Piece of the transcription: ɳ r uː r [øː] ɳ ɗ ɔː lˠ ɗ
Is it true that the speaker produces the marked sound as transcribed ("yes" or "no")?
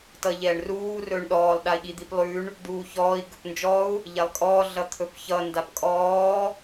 no